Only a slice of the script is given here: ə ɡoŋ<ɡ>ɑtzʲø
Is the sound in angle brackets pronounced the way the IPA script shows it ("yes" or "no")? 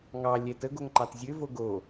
no